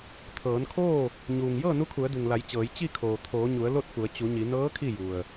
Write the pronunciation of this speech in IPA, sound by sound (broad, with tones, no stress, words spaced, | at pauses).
t̪ʰɤː˩˧n kʰoː˥˨ | ɲuː˩ŋ jɤː˥˨nu˧˥kʰu˩˧ə̯du˩ŋ la˩˧j t͡ɕɤː˩˧j t͡ɕi˥˨kʰoː˩t̪ʰoː˩˧ɲu˩˧ə̯ lo˥˨t̚fu˩˧ə̯ t͡ɕu˩˧ɲi˩˧ nɤː˧˥ kʰi˥˨ju˩ə̯